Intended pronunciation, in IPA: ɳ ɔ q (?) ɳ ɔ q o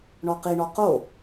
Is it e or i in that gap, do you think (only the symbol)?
i